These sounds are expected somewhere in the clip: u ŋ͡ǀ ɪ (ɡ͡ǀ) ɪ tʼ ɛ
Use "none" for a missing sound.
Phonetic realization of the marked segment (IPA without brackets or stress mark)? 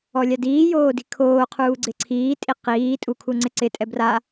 ǀ